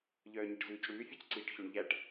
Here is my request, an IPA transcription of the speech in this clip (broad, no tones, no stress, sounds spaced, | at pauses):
ʎ œː ɲ i ʈ z ʉː c ɽ ʉː fʲ œ c ǀ iː ʈ ç o ɳ ʎ æ ʈ